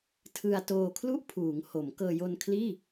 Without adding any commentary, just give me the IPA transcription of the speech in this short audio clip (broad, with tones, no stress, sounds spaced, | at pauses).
tʰ ɯ˧ a̯ t oː˧ kʰ l u˥˩ ʔ pʰ uː˩˦ ŋ h o˩˦ m k ɤː˧ j o˧ n kʰ l iː˥˩